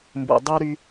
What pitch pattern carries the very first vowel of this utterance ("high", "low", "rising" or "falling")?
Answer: low